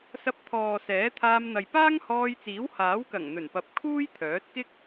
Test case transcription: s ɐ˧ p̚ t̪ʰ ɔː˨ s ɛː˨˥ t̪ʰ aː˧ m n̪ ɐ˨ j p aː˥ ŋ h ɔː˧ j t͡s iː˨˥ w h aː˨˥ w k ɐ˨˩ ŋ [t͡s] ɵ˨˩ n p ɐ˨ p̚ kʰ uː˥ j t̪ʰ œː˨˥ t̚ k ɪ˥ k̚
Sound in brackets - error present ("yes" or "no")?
yes